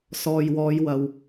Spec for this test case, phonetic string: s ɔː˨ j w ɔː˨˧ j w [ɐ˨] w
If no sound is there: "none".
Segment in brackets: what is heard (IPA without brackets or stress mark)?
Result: ɐ˨